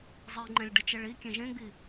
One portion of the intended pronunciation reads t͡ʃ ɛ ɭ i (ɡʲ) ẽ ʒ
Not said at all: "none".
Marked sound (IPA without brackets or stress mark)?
kʲ